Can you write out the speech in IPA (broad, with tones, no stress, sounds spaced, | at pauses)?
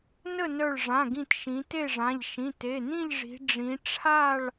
n ə˥˨ n œ˧˩ ɭ ʐ ã˩˧˩ ɡ ĩ˧˩ t ʃ ĩ˩˧ t e˥˨ ʐ ã˩˧˩ ʎ ʃ ĩ˩˧˩ t e˩˧˩ n ĩ˥˨ ʎ ʐ i̤˩˧ ɖ͡ʐ ĩ˩˧ ʈ͡ʂʰ a˥˨ ɭ